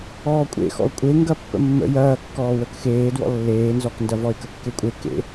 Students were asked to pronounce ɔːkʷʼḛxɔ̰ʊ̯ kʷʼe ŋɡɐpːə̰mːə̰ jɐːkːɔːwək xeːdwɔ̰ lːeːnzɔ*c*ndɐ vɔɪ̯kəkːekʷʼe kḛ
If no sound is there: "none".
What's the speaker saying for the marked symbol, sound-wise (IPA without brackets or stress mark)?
k